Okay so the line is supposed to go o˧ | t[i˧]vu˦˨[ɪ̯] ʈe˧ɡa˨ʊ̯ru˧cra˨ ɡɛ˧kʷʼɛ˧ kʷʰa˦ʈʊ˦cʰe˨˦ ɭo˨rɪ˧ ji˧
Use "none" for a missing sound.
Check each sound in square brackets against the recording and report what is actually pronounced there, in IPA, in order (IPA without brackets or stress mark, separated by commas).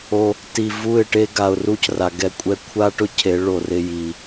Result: i˧, ɪ̯